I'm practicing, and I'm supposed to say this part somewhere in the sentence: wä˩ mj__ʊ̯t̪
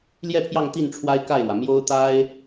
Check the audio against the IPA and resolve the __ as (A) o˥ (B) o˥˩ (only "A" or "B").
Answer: A